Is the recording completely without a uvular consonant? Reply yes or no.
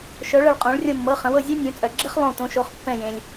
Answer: no